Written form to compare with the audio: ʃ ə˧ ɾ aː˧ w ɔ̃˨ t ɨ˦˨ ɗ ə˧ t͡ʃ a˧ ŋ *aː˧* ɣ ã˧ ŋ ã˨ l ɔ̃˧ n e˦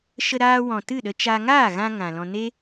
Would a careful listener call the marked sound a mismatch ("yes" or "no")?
yes